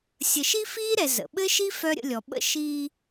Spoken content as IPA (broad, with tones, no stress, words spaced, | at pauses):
sʲə˨ʃi˥fiː˥ɾɛ˨ zə̰˩ɓɘ˥ʃi˥ fœ˥ɾʲə̰˦lʲɔ˨ ɓə̰˥ ʃiː˦